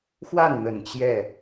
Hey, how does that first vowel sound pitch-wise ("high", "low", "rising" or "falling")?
falling